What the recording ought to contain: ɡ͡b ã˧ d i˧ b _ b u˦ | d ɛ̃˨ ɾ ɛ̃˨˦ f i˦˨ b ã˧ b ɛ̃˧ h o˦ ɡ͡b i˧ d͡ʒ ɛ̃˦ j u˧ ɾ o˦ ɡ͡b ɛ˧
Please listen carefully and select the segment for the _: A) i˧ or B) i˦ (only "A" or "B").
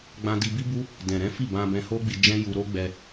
B